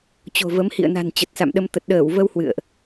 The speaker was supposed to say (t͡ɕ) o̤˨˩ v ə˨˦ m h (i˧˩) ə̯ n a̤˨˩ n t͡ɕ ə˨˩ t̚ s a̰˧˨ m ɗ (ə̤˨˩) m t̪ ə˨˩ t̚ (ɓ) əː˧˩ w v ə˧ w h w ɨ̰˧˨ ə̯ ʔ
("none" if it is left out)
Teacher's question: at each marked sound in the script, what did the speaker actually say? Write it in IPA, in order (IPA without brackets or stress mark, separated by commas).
t͡ɕ, ḭ˧˨, ə˧, ɗ